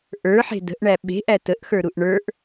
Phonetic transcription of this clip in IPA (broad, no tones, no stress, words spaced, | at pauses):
ʔə˞ħe̤ də̤ʔɳæ ɓe̤ʔæ təʔxə˞ɾuʔ ɳə˞ʔ